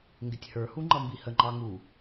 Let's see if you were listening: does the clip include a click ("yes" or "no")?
yes